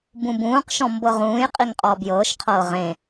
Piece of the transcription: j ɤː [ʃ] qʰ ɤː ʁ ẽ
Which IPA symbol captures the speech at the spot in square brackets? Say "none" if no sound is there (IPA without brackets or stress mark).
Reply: ʃ